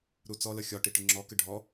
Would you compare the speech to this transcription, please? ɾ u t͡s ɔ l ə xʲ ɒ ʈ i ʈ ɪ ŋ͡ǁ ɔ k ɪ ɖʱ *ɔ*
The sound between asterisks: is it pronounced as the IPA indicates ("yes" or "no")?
yes